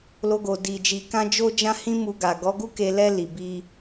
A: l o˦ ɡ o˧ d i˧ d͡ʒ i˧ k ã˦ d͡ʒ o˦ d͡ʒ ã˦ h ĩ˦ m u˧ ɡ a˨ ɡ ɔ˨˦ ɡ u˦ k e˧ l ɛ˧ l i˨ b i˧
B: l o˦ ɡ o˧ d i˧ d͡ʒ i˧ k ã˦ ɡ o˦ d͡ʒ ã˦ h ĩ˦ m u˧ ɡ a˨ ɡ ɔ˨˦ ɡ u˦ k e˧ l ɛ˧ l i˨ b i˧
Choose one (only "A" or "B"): A